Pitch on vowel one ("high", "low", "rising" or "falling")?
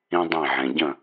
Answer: high